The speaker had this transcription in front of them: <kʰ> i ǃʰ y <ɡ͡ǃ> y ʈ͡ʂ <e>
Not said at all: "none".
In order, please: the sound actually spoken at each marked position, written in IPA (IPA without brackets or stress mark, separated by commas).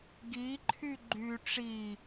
ɡ, ɡ͡ǃ, i